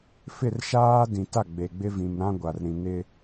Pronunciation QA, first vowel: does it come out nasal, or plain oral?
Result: oral